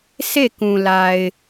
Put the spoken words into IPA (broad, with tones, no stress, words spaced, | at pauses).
sʰe˦˨kũ˨ la˨ɪ̯